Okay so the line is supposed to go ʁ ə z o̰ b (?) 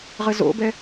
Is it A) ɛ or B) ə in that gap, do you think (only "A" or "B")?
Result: A